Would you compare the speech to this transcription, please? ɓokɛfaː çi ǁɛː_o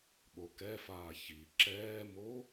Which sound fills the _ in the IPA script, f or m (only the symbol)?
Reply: m